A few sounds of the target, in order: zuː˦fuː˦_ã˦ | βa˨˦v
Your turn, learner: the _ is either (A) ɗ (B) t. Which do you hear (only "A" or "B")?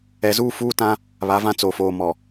B